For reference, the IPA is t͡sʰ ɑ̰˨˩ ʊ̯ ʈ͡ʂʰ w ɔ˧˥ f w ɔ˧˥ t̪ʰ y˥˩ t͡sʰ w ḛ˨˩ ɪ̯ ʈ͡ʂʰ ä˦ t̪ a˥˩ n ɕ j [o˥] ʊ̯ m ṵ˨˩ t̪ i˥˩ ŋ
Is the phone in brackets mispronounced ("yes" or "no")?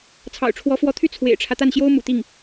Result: no